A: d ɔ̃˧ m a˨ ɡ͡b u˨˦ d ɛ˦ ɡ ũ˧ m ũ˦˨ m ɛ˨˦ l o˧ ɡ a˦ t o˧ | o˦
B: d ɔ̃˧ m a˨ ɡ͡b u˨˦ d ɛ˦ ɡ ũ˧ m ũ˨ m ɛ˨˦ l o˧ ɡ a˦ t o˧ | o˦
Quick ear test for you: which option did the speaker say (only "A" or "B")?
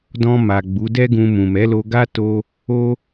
B